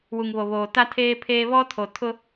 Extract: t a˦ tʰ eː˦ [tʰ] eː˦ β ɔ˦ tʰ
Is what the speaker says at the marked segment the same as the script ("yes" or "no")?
no